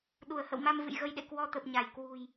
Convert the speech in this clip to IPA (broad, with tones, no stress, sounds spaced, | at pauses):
ɗ u˧˩ ə̯ h ə̰˧˨ w m a˧ m v ɨ̰˧˨ j ɣ ə˧ j ɗ ḛ˧˨ k w ɔ˧ t̪ ə˨˩ p̚ ɲ a˧˩ j k w ṳ˨˩ j